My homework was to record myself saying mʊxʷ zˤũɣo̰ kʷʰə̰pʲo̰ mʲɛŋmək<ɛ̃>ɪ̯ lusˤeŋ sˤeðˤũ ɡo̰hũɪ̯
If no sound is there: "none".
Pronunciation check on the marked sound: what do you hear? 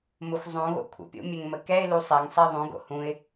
ɛ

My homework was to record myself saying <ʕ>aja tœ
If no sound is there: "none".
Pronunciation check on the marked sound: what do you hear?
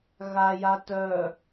ɣ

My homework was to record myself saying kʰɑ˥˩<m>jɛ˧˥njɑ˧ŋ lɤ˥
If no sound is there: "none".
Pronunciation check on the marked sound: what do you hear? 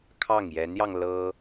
ŋ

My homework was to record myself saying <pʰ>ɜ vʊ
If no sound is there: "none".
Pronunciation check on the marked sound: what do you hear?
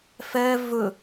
f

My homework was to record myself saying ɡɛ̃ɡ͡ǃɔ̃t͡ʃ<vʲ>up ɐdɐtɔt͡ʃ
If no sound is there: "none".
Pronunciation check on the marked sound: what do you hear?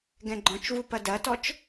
v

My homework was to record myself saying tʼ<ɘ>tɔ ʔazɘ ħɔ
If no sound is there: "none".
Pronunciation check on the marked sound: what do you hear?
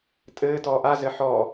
ɘː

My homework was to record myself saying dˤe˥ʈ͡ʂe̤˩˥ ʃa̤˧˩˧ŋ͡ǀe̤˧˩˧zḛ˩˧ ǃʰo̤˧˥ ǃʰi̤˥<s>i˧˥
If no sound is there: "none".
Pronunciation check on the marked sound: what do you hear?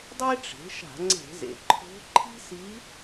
s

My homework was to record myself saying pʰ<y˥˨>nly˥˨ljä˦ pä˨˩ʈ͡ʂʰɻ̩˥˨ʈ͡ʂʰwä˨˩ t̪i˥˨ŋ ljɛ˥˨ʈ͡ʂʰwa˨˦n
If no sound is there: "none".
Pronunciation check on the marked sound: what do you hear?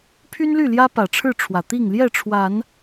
y˦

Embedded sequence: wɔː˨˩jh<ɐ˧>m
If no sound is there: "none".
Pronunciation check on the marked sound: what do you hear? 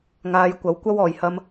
ɐ˧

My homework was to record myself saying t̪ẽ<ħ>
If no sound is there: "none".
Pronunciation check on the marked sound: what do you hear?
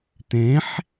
ħ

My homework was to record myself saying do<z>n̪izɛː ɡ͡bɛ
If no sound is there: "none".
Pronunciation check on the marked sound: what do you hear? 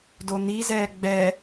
none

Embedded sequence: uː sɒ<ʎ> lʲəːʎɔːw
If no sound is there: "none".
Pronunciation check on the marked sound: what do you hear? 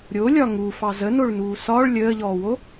ɭ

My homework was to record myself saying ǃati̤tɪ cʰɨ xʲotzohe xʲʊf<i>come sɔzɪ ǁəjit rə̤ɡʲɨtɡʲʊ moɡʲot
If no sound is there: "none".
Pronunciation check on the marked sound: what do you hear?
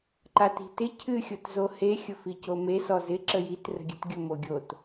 i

